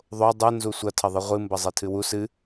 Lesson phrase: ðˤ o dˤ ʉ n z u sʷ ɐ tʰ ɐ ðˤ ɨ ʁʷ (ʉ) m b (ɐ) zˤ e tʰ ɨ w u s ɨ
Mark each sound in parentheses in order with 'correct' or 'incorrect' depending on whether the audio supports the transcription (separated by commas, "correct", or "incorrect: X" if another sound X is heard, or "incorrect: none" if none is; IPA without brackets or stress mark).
incorrect: ɨ, correct